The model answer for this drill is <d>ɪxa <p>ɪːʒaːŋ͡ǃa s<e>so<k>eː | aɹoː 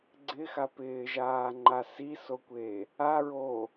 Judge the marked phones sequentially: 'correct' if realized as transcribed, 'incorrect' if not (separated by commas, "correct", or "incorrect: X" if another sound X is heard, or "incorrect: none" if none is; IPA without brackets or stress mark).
incorrect: ɡ͡ǀ, correct, incorrect: i, incorrect: kʷ